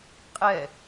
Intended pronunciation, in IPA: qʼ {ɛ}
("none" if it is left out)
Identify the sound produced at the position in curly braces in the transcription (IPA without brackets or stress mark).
ɛ